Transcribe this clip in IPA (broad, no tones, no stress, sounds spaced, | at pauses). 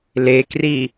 l e k r i